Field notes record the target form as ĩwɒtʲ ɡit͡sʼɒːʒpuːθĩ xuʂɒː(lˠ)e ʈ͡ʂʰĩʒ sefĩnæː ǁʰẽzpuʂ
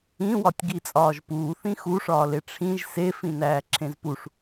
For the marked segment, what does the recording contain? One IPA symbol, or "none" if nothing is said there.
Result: l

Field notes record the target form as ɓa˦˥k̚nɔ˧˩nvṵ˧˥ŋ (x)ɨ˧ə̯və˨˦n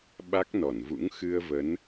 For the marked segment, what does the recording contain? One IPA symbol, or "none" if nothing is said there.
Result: x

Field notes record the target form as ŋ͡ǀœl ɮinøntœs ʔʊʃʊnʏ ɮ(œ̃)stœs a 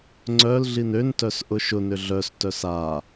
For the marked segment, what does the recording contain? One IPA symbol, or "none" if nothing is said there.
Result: œ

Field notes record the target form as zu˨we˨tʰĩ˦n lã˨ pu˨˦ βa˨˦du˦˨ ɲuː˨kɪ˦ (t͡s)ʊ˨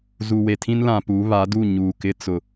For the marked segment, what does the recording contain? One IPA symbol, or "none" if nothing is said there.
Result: t͡s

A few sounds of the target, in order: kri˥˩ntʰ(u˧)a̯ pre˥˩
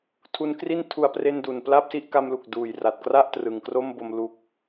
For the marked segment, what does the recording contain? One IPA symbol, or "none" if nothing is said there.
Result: u˧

